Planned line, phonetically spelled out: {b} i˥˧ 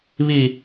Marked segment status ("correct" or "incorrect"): incorrect